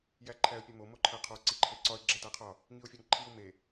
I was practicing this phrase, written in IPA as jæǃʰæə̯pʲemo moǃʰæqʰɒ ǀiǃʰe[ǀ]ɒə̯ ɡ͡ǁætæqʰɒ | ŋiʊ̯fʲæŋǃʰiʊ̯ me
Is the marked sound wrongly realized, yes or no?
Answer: no